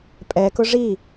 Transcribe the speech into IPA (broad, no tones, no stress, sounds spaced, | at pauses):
pʼ ɛ k ʊ ʐ i